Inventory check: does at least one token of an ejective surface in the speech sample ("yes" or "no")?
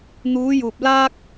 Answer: no